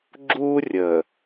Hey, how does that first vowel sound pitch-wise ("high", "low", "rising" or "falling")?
high